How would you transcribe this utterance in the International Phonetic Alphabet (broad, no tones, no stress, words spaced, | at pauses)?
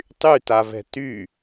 tˤytavɛ̤ ty